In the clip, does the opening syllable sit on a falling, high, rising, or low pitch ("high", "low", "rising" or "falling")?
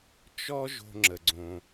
high